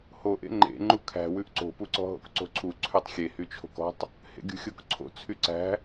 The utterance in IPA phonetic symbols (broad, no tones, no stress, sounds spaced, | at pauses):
h o ʔ ḛ ŋ͡ǃ ḛ ŋ͡ǃ u kʰ æ̤ w ʉ ʔ ǀ o̤ p u ǀ ɔ̤ ɦ o̰ k ǀ o̤ ǀʰ u ǀʰ ʉ tˤ xʲ e h y t͡ʃʰ o̤ k ɔ̤ tˤ | h ḛ ɡʲ ṳ xʲ o k ǀʰ o̰ t͡sʰ y ǀ æ̤